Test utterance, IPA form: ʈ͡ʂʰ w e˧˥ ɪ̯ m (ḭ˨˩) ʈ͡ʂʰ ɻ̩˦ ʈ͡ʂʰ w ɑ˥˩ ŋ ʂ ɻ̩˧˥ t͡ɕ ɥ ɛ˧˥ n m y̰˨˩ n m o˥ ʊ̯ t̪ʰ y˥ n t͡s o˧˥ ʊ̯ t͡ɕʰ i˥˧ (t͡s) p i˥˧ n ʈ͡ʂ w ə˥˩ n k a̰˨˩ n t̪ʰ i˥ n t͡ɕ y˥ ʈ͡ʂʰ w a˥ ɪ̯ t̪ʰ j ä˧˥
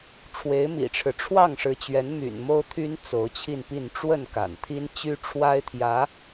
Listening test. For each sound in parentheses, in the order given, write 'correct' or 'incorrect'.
correct, incorrect: n

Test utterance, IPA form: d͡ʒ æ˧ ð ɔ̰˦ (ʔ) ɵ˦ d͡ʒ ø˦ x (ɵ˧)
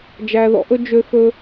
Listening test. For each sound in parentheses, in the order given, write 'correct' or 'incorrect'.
correct, incorrect: ɵ˦

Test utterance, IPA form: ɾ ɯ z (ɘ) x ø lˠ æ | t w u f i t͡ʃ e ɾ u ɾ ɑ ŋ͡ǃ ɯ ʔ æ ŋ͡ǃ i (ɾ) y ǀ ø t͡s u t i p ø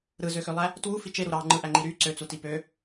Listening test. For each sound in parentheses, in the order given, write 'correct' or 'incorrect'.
incorrect: ø, correct

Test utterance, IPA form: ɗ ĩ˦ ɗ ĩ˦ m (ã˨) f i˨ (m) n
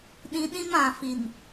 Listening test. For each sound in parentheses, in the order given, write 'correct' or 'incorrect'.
correct, incorrect: none

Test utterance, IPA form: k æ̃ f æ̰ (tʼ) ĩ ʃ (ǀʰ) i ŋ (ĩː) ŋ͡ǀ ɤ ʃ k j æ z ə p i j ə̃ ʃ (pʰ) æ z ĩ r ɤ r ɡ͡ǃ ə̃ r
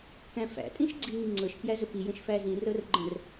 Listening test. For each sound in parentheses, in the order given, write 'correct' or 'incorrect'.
correct, incorrect: ɡ͡ǀ, incorrect: ĩ, incorrect: f

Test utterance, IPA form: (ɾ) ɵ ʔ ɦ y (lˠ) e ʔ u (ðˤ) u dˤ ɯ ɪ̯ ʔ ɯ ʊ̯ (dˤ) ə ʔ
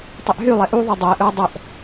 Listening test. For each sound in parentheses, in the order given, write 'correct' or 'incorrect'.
incorrect: tˤ, correct, correct, correct

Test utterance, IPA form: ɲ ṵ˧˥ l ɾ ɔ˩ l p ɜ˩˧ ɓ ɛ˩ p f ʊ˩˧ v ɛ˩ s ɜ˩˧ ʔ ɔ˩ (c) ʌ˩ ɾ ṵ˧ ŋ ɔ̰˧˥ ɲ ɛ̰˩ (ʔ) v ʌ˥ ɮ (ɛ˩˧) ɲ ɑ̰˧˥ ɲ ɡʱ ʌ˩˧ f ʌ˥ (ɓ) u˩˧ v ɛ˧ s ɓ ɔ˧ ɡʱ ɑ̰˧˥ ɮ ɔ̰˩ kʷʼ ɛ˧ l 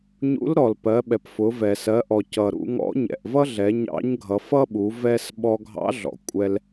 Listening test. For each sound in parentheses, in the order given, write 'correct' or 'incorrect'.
correct, correct, correct, correct

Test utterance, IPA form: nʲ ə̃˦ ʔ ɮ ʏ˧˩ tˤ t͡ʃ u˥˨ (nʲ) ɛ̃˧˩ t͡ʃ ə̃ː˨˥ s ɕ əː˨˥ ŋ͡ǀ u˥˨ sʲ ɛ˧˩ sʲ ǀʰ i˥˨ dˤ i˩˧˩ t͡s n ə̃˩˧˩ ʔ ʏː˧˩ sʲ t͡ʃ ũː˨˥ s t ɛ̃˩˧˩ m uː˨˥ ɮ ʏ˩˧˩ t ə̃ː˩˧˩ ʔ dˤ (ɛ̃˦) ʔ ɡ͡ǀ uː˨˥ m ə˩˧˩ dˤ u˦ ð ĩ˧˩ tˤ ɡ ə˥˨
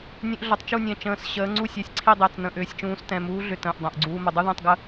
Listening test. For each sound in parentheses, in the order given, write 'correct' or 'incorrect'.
correct, incorrect: ɛ̃˩˧˩

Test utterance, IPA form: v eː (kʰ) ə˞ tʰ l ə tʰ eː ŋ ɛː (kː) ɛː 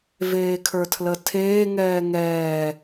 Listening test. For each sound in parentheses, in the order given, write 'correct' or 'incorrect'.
correct, incorrect: ŋ

